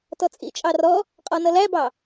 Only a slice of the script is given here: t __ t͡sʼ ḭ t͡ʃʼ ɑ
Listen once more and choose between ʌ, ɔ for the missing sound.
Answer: ɔ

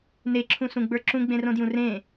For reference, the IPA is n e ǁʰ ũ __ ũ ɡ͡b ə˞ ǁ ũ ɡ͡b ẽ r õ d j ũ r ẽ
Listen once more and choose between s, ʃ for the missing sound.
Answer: s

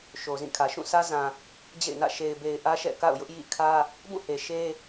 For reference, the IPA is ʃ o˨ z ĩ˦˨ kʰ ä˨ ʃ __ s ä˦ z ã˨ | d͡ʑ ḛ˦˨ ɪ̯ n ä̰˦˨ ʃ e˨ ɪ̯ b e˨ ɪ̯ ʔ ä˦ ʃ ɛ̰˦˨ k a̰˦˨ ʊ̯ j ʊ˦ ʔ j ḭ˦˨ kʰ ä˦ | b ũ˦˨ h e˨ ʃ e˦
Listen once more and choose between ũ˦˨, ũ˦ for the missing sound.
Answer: ũ˦˨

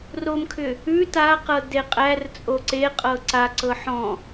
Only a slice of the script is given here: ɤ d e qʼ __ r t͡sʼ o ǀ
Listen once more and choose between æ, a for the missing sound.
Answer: æ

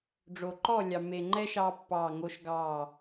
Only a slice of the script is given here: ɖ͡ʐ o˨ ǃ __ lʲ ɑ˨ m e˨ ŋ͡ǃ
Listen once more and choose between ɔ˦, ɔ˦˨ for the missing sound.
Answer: ɔ˦˨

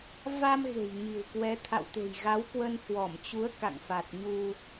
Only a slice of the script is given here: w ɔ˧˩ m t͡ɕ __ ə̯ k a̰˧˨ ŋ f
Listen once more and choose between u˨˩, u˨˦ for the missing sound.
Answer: u˨˦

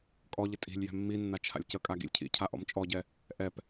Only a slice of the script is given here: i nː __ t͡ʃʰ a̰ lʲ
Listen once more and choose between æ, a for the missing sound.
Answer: a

